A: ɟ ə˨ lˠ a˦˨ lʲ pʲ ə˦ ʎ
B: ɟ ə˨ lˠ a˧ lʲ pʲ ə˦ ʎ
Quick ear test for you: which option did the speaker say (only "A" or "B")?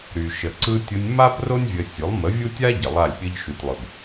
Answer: A